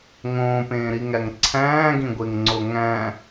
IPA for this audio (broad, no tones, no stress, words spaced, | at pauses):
ŋõːpẽːɾiŋæŋ ǀʰæ̃ːɡĩɡʷeŋŋ͡ǀo ŋæ̃